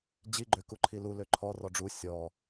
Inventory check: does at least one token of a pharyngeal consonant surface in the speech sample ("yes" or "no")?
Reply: no